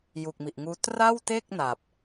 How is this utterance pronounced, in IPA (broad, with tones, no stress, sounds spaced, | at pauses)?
j u˨˩ k̚ m i˨˩ ʔ ŋ uː˦˥ t r a˥˩ w t e˥˩ k̚ n a˨˩ p̚